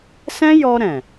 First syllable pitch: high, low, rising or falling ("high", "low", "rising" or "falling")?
high